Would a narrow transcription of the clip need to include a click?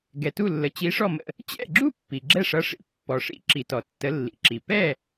yes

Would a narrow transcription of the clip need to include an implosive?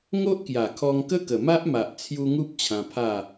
no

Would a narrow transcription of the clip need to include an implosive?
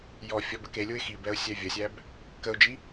no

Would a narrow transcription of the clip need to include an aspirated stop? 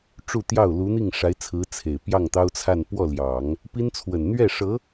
yes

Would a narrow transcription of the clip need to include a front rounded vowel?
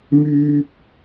yes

